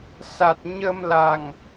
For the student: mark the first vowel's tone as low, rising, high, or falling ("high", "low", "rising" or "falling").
low